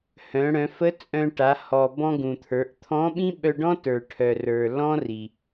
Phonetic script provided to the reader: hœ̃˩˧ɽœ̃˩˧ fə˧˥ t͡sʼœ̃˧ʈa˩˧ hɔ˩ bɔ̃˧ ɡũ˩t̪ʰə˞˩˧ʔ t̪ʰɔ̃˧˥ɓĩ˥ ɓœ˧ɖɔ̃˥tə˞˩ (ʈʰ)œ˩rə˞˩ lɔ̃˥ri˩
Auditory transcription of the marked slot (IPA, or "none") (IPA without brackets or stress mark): ʈʰ